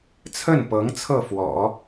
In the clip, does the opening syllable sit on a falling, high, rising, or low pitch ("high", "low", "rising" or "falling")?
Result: falling